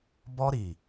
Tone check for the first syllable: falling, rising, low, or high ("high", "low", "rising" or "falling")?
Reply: high